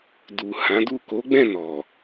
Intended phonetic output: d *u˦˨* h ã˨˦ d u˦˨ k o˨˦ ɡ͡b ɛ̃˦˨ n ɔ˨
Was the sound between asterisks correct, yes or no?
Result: no